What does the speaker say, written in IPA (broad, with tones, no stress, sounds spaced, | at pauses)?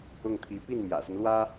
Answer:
ʊ˥˩ ŋ t̪ʰ i˧˥ p i˥˩ n m j ä̰˨˩ s ə˦ n l w ä˥